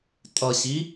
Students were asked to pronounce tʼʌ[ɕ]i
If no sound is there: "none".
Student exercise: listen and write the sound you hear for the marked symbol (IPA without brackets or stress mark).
ɕ